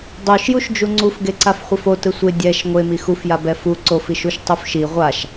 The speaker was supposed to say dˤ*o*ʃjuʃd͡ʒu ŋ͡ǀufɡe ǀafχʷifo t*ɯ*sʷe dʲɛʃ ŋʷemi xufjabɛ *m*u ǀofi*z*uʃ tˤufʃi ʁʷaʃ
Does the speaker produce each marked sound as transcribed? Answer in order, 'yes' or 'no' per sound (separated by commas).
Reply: yes, yes, no, no